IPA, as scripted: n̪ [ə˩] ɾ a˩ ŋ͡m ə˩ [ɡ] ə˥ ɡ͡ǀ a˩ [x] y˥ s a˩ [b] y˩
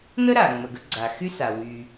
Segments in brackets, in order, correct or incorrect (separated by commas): incorrect, correct, correct, incorrect